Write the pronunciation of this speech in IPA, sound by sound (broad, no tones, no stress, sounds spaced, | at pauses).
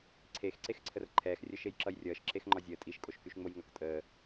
ǀʰ e x ǀ e x ǀʰ ə r ǃʰ ɛː x rʲ ə ʃ e j ǁ ʌ j rʲ ʌː ʃ ǁ e x ŋ͡ǃ ɒ zʲ əː tʼ i ʃ kʼ o ʃ k y ʃ ŋ͡m o j ŋ ʌ k tʼ əː